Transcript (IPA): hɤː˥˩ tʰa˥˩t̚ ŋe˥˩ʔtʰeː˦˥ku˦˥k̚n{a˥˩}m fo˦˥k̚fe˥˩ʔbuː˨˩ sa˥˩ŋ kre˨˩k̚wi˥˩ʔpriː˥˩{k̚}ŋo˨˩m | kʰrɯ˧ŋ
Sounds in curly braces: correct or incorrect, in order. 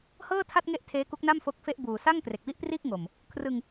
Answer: correct, correct

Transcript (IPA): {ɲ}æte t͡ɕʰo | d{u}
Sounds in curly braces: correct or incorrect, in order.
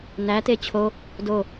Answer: incorrect: n, incorrect: o

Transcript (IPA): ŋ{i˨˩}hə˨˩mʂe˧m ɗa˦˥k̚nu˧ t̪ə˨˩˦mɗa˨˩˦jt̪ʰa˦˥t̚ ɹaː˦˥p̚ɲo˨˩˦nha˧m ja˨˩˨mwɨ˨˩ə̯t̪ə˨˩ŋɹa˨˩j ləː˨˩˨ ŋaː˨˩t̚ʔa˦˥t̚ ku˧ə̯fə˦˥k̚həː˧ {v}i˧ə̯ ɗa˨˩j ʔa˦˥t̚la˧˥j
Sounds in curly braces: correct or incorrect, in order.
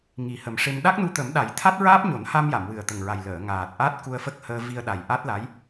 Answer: correct, correct

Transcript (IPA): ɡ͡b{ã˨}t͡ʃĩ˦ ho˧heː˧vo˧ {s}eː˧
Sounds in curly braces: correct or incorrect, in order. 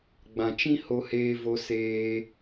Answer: correct, correct

